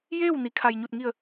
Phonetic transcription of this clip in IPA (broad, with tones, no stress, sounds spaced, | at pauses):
j eː˥˨ w n i˩˧ kʰ a˩ j ɲ u˧˩ t̚ ŋ i˧˩ ə̯